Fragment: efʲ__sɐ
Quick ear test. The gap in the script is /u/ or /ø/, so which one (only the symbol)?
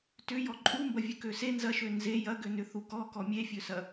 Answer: ø